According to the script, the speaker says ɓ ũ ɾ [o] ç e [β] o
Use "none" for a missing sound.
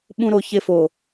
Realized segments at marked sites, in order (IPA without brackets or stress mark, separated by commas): o, f